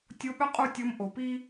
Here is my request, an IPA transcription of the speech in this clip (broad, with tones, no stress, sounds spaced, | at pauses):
tʲ o˧˥ ɓ œ˥ qʼ u˥ tʲ ɤ˧˥ m ʔ o˩ p i˥